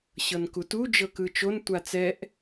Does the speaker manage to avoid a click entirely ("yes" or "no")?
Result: yes